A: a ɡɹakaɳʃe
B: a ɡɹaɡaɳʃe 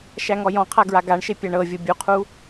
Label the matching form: B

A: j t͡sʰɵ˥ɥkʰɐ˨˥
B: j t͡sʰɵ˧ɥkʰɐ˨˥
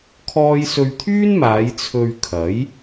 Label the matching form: B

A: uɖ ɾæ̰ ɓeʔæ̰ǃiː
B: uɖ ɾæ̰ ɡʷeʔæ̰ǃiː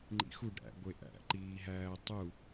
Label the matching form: B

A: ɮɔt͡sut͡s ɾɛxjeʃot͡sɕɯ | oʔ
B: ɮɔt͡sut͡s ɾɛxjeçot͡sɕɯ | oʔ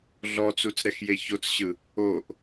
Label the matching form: B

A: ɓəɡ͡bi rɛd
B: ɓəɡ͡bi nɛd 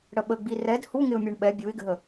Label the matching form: A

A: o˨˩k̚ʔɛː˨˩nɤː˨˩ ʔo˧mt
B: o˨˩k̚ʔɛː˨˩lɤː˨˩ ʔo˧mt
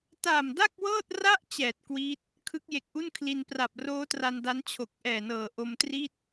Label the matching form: A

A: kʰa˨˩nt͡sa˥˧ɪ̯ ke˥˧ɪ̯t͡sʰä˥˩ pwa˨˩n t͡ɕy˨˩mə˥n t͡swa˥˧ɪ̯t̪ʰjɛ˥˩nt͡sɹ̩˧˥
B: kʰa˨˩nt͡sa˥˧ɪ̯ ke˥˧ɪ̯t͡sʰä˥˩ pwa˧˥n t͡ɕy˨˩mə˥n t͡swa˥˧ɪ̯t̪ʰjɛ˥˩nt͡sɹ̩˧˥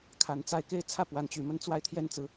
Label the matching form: B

